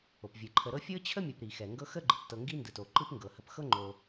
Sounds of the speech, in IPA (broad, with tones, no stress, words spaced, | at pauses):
o˩pvʲɯ˩ ǃʰə˨ɾɤ˦ fʲɤ˥t͡ɕʰə˥ mʲo˨p ɾi˩xɛ˩ŋɡɤ˦ xə˦ɡ͡ǃɯ˩ptɤ˨ ŋɡi˥ndɯ˩to˩ ǃɯ˦pŋɡɤ˩hə˨pxɤ˥ ŋ͡ǃo˨